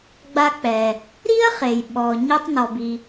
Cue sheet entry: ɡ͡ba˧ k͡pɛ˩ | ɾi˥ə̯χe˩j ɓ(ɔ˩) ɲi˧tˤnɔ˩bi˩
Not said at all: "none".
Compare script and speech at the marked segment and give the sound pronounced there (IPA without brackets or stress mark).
ɔ˩